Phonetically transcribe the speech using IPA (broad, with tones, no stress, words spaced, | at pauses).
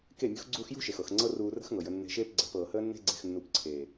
ke˦˨mʲṳ˦xɡ͡ǀuː˦x jṳ˦ʃe˨x ɤ˨xŋ͡ǀɤ˦ ruː˧rə̤˦xŋɤ˨jə˧ nːe̤˧ʃeː˦pɡ͡ǀə̤˨˦ pɤː˨həː˦nːe̤˦ ɡ͡ǀe̤˧xnːu˧pǀʰeː˨